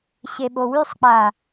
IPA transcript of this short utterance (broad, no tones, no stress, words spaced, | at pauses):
ɕeɓowysˤk͡pa